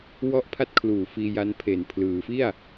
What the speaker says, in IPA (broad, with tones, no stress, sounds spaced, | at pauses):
w ɔ˦˥ ʔ pʰ a˦˥ t̚ kʰ l uː˨˩ f iː˧ j a˦˥ n pʰ e˨˩ n pʰ l ɯː˩˦ f i˥˩ a̯